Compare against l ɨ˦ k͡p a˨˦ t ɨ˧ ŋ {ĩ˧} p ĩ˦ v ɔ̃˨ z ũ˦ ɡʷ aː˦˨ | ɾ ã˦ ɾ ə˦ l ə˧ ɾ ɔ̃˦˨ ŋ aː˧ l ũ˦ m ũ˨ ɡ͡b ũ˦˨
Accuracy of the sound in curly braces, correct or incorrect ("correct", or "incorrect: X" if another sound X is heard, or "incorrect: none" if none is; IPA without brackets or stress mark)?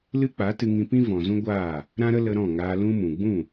correct